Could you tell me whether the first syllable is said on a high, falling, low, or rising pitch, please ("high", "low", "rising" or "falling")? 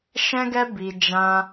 high